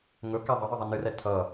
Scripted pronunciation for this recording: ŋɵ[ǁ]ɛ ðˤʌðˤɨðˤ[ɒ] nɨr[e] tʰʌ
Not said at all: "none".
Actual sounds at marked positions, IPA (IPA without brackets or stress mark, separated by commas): k, ʌ, ɛ